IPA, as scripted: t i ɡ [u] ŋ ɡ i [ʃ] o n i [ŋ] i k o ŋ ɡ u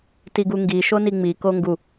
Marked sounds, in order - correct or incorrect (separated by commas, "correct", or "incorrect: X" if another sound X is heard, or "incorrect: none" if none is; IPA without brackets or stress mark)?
correct, correct, incorrect: ŋ͡m